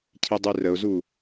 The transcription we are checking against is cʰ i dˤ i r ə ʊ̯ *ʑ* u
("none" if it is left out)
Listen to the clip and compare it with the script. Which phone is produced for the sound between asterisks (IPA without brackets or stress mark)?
z